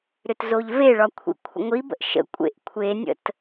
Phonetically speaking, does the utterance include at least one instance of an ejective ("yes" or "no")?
yes